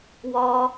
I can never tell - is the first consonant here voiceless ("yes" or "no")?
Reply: no